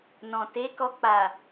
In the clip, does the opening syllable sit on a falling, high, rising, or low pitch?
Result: low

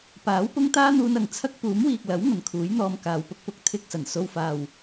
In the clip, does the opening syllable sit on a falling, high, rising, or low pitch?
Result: rising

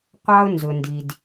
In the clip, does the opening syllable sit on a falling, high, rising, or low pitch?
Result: high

